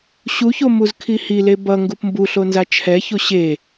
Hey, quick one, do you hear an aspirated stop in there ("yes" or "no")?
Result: yes